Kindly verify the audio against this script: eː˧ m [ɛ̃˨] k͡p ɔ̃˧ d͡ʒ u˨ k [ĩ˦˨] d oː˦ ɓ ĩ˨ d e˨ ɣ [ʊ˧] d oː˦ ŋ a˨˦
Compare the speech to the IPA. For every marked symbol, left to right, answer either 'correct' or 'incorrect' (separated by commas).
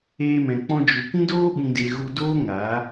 correct, incorrect, incorrect